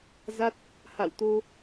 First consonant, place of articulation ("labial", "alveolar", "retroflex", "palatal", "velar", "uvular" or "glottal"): alveolar